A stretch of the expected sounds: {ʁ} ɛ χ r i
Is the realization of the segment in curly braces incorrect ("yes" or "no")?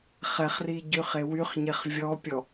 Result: yes